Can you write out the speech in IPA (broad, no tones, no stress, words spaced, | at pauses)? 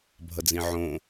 bʱʌd͡zĩʕõ